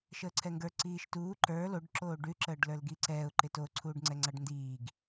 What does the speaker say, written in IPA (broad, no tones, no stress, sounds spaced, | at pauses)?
ʃ əː ǀʰ ɛ ŋ ɡ ə˞ ǀ iː ʃ t uː ǃ ə˞ l o ɖ ǁ oː ɖ ʉ ǁ əː ɖ l ə˞ l ɡ i ǀ ɛː ʊ̯ ǃ ɪ t o ǀʰ uː ɖ ŋ͡ǀ ɛ ŋ͡ǀ a ɖ n d iː ɡ